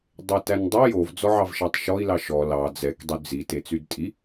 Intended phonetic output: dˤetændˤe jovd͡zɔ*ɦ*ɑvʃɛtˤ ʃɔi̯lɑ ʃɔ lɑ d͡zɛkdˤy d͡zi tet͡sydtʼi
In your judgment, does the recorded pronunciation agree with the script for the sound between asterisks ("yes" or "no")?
no